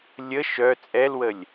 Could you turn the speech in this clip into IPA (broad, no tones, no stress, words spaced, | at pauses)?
lʲə ʃœ t͡sʼɛlwəlʲ